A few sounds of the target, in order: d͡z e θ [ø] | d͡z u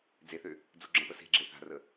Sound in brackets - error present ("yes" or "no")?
no